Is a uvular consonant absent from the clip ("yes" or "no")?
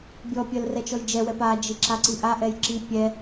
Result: yes